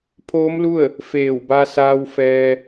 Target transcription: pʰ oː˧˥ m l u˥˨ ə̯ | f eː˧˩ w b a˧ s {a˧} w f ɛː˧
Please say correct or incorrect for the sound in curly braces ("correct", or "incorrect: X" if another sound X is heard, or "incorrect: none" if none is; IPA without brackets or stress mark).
incorrect: aː˧